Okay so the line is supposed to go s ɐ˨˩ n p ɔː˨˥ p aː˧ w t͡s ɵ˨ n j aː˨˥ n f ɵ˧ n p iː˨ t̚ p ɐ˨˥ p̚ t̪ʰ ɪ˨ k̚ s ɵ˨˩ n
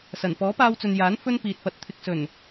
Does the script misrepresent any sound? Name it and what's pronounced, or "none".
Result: p̚ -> t̚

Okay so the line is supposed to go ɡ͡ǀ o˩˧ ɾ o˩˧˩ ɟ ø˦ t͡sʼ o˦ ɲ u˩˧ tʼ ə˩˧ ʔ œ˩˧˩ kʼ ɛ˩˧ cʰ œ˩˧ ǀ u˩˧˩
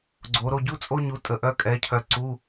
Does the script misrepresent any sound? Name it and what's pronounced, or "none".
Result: ø˦ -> u˦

